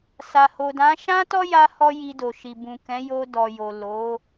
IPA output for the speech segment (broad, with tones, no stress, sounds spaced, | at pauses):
s a˨ h o˨ d ã˨˦ ʃ ã˦ t ɔ˦ j a˧ h ɔ˧ j i˧ d o˨ ʃ i˨ b ũ˨ k ɛ̃˨˦ j o˧ d ɔ˨ j o˨ l o˨˦